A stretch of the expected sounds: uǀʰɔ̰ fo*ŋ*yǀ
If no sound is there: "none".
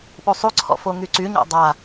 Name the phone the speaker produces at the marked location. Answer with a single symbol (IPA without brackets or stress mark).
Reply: ŋ